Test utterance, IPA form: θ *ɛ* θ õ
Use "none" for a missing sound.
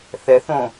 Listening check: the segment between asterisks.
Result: ɛ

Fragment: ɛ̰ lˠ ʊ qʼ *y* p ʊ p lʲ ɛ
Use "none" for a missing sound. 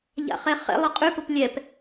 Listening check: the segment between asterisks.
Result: y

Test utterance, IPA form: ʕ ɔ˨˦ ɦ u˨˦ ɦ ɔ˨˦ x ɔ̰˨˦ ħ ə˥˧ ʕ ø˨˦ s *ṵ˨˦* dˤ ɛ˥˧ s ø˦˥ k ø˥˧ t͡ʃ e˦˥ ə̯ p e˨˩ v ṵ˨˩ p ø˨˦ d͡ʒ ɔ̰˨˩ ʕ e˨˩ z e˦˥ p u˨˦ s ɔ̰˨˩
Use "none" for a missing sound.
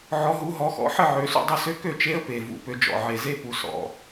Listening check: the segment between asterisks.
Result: ṵ˥˧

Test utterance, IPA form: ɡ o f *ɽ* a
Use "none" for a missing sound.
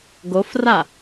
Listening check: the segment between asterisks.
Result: r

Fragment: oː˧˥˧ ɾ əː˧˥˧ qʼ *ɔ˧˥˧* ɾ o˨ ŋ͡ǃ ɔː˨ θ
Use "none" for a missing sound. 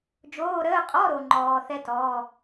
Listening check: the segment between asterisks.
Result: ɔ˧˥˧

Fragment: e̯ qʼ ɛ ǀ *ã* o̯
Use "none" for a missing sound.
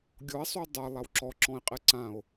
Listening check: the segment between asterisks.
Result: ã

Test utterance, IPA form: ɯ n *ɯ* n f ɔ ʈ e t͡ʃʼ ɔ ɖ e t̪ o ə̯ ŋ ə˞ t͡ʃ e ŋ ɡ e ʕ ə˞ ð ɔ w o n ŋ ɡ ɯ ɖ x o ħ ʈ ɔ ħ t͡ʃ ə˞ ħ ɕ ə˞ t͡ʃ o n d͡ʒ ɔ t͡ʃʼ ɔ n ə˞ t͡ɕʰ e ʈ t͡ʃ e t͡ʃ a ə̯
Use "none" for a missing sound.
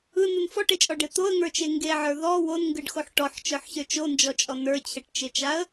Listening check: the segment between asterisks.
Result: ɯ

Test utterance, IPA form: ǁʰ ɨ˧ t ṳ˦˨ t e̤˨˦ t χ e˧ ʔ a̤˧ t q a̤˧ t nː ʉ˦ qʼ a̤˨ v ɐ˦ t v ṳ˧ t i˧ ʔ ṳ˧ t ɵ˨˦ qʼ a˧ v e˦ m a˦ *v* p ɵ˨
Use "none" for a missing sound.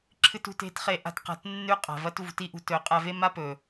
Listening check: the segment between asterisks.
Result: none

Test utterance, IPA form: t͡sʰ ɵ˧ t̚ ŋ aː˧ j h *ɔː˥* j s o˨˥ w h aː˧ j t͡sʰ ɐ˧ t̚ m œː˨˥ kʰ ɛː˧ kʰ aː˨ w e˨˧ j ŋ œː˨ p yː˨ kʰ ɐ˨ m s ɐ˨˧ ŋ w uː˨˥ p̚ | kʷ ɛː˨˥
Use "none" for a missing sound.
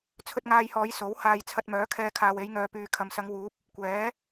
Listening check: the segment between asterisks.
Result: ɔː˨˧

